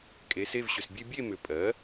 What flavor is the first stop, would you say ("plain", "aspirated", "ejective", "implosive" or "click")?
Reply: ejective